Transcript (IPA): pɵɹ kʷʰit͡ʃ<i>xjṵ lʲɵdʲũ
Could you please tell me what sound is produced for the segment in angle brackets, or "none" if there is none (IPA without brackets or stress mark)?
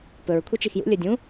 i